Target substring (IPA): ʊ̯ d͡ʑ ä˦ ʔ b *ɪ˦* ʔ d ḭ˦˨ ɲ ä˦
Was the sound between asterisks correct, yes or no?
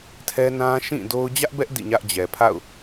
no